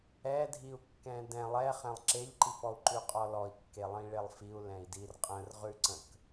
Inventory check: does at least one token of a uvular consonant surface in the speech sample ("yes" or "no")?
yes